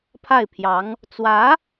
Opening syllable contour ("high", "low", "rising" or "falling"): falling